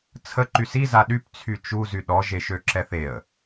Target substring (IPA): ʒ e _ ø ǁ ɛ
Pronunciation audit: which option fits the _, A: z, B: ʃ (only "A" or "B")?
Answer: B